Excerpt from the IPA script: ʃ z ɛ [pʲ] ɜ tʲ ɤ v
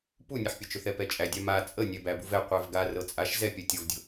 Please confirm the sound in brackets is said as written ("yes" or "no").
yes